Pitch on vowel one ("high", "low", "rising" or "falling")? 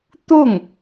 falling